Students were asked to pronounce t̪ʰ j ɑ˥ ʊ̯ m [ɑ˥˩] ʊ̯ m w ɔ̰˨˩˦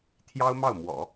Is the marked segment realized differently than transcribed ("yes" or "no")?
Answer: no